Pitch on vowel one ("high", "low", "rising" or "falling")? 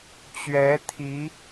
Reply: rising